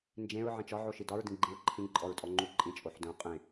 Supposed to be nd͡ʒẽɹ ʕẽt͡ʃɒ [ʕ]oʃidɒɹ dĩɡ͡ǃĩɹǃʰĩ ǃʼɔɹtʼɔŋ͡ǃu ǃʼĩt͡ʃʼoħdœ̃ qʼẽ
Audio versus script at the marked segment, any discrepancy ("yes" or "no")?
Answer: no